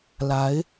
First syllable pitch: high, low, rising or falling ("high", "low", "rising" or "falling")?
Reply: rising